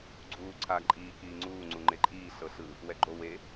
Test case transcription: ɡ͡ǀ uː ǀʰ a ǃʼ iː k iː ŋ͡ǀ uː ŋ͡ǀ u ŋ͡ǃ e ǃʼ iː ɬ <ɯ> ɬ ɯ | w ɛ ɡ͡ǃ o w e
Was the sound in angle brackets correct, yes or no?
no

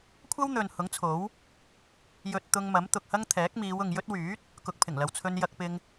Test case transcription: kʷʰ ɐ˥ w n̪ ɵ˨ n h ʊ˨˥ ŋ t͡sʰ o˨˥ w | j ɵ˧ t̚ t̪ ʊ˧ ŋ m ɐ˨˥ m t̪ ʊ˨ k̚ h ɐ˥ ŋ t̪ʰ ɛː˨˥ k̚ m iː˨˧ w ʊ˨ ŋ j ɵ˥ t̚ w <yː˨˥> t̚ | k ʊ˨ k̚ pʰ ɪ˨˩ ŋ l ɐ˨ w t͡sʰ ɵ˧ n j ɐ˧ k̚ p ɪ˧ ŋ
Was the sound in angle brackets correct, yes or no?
yes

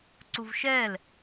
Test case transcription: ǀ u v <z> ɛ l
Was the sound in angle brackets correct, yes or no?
no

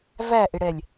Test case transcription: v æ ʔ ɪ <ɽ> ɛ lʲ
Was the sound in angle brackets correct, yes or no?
yes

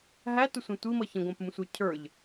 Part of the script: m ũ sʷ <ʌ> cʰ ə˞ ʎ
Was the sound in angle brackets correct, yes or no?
no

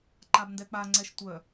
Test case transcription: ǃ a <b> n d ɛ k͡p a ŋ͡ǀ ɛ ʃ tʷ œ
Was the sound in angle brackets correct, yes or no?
yes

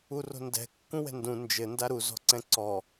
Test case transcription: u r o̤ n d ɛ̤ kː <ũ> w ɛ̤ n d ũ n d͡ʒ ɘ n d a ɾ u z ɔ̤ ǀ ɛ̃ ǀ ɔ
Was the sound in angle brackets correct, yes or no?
yes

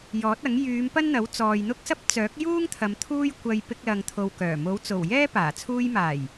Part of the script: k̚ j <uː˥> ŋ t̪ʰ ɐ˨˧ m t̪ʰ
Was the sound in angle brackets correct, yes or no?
yes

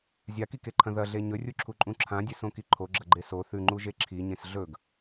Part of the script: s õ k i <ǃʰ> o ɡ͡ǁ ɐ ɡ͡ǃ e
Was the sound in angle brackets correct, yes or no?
yes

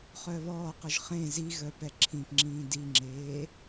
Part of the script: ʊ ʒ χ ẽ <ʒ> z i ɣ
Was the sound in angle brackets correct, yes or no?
no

